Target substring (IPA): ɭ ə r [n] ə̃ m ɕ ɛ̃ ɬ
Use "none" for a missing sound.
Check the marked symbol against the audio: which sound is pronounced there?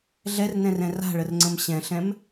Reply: ŋ͡ǀ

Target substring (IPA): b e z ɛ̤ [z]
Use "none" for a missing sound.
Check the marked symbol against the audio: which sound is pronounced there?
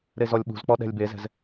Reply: z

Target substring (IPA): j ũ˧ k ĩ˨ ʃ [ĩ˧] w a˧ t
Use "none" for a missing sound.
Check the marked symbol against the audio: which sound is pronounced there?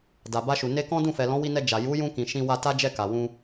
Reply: ĩ˧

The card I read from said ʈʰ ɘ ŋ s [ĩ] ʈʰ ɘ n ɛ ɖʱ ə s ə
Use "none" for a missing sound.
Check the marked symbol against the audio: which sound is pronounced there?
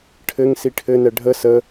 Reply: i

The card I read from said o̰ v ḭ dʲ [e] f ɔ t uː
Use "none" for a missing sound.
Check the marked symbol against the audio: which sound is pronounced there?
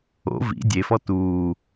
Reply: e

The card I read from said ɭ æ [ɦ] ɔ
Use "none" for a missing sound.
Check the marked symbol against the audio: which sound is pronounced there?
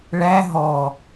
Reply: ɦ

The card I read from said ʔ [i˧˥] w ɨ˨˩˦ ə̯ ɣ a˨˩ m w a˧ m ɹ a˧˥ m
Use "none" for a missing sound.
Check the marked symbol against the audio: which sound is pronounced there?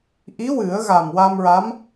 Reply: i˧˥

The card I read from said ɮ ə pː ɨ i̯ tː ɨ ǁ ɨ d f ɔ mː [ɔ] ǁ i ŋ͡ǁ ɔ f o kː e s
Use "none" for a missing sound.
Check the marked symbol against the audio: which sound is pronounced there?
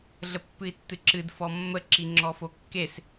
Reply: ə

